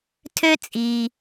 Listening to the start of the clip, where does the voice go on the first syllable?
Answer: high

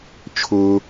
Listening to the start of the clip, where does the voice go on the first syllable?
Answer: high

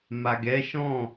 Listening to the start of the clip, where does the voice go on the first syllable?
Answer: low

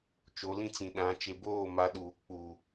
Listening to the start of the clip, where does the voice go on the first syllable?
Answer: rising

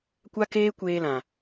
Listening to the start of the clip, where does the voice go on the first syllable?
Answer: high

